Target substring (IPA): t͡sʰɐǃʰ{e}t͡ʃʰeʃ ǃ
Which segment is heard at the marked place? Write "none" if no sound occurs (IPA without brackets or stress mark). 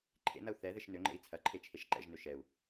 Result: e